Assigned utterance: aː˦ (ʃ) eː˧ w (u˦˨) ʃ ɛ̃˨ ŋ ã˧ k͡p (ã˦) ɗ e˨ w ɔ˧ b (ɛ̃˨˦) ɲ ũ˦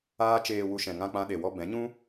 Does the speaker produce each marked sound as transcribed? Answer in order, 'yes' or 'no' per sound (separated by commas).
no, no, yes, yes